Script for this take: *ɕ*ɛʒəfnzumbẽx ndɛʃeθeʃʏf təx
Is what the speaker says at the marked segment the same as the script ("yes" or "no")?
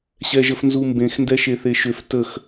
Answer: yes